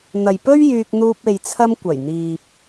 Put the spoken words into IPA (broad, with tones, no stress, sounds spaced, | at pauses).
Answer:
n̪ ɐ˨ j p ɵ˥ ɥ j yː˧ k̚ n̪ uː˧ p̚ e˨ j t͡sʰ ɐ˧ m kʷ ɐ˨˩ j n̪ iː˨ p̚